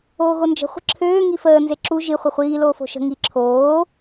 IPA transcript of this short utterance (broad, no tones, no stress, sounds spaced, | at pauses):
oː ɣ o n d͡ʒ ə̤ χʷ ə̤ ǁʰ øː ŋ i f əː n z e ǁ u ʒ i χʷ ɘ χʷ iː l oː f o̤ ʃ ə̤ ŋ i ǁʰ oː